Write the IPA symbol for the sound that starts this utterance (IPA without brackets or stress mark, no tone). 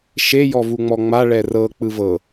ʃ